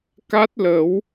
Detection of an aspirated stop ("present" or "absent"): absent